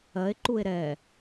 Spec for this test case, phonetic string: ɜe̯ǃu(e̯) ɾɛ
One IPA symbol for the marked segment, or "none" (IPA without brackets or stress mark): e̯